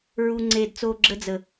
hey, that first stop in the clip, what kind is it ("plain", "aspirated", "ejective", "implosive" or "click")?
click